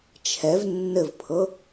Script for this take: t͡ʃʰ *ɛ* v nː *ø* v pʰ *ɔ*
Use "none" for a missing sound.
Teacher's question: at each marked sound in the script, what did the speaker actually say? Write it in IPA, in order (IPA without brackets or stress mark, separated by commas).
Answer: ɛ, ɘ, ɤ